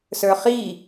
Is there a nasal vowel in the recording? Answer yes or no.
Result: no